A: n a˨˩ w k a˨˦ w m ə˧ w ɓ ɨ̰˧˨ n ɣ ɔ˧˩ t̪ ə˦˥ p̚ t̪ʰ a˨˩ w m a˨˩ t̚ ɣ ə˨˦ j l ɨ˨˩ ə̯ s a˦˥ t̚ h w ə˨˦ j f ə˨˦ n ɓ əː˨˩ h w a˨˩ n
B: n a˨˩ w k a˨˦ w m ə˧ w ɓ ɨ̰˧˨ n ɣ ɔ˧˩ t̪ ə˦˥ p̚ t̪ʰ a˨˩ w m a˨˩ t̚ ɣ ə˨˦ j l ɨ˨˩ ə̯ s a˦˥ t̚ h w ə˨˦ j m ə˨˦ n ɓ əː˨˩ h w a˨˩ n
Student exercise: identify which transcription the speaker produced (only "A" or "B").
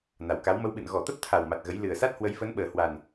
A